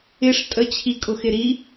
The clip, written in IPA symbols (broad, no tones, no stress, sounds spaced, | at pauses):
ɪ ʂ tʼ ə t͡ɕʰ i kʼ ʊ x ɪ ɾ i